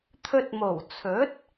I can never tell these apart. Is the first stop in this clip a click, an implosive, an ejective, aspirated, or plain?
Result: aspirated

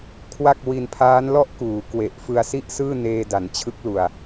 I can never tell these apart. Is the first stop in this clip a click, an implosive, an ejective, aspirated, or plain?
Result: aspirated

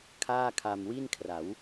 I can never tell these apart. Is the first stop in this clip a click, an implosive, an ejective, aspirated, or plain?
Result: aspirated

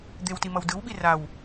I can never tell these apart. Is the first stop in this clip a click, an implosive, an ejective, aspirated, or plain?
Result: plain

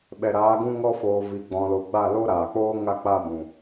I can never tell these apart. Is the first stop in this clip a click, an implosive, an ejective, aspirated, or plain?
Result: implosive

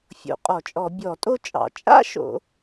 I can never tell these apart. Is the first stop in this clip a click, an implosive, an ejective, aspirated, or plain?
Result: ejective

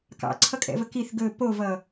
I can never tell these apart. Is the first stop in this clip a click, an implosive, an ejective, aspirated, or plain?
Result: plain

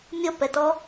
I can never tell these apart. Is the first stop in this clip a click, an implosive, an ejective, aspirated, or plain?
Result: plain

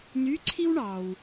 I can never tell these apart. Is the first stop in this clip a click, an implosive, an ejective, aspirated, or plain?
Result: click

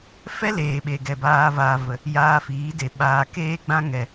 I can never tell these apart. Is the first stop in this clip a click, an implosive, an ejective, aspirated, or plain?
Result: implosive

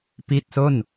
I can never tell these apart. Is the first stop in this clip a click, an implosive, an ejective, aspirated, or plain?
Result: plain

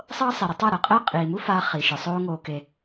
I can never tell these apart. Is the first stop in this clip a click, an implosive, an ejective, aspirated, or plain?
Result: plain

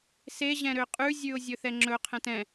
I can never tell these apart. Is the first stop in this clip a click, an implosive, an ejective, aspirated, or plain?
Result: ejective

